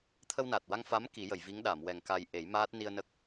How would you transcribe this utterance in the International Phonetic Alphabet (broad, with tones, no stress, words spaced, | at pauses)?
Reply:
t̪ʰə˧wnaː˨˩t̚wa˧ŋ fa˧˥m ki˨˩˦jə˨˩˨jvi˧˥ŋ ɗa˨˩˨mwɛ˨˩ŋ ka˧j ʔe˨˩˦jmaː˦˥t̚ ni˧ə̯nə˦˥k̚